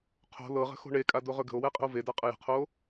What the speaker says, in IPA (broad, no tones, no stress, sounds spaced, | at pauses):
qʰ o̤ l ɤ ʁ ə̤ x o̤ ɳ e kʼ a d o ʁ ɵ ɡ ə̤ o̯ w ɛ qʼ ə̤ o̯ v e d a qʼ ə j ə̤ qʰ o